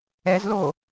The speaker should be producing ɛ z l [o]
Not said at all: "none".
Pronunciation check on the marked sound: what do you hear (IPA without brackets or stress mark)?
o